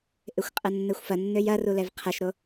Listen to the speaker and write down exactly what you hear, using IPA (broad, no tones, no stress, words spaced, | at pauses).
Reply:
ʔɪxʷqʼɐnːɛxʷfɐ nːøjɐrulɛv qʰɐʃɾo